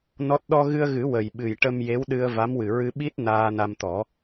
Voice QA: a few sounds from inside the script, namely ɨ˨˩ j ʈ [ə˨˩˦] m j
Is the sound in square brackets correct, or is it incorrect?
incorrect